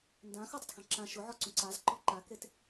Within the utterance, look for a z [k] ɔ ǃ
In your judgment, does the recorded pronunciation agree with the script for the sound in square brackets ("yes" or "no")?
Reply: no